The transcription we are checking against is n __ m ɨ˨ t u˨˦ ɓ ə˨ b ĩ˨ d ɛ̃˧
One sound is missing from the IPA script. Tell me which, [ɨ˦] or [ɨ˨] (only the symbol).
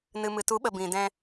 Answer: ɨ˨